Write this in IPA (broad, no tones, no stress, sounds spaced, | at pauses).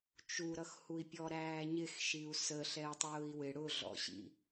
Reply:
t͡ʃ u ɾ ʌ x h u i̯ pʲ ɔ ɾ æː ɲ ɪ x ʃ i u̯ s ə ɬ ɛ u̯ tˤ ʊː i̯ w ɪ ɽ ʊ ɮ ɔ̰ ɕ ḭ